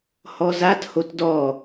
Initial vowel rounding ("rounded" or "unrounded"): rounded